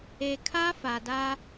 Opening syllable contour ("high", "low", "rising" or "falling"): low